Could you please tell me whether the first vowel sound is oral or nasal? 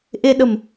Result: oral